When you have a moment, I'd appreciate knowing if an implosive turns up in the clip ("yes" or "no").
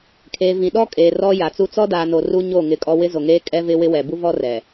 yes